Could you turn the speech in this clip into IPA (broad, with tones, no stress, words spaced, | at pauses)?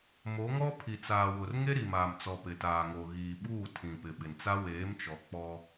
mo˨˦ŋɔ˦ pʰi˨t͡saː˨wʊ˨r ŋe˦ɾi˨maː˨mt͡sɔ˨ pɪ˨taː˨ŋo˨ ɣiː˨ɓuː˦˨ tʰĩ˨pɪ˨ɓɪ˨nt͡sa˦ weː˨˦mt͡ʃɔ˨ k͡pɔ˦